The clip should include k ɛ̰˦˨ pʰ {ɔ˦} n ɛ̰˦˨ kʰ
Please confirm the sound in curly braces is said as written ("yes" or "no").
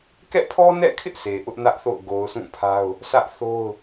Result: yes